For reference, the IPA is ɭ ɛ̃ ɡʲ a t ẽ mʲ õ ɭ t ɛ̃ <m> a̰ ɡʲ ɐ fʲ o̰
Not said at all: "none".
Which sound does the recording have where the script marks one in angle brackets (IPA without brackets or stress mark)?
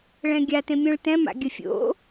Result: m